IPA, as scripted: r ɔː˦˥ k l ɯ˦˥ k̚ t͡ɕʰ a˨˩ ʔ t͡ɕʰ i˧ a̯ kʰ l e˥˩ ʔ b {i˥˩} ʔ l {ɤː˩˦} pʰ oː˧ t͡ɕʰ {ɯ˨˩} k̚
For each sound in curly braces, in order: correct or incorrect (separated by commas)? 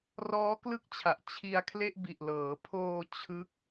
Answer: incorrect, correct, incorrect